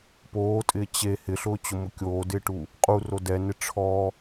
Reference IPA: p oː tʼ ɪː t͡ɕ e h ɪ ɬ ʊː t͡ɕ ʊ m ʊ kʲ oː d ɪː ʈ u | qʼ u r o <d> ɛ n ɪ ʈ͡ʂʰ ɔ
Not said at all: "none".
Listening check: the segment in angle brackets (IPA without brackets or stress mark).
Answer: d